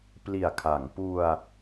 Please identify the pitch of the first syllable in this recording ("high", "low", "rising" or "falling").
low